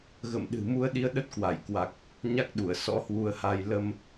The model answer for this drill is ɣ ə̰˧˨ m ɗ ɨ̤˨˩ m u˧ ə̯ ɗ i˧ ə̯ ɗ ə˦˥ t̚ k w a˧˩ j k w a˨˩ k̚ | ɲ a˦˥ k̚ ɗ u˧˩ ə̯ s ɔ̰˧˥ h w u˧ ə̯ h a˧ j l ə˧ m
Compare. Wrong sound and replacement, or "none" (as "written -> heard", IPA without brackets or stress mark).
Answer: none